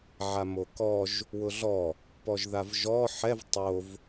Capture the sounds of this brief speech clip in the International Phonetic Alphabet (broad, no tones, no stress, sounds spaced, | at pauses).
ʕ a m o k ɔ ʒ | w ʊ ɮ ɔ | p ɔ ʒ ð a v ʒ ɔ ħ ɛ v tˤ o v